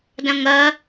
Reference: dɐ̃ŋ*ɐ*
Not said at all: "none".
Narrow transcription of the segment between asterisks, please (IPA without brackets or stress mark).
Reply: ɐ